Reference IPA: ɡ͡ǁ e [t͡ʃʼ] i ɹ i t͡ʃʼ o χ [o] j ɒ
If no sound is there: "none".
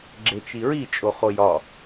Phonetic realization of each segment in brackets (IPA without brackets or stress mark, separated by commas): t͡ʃ, o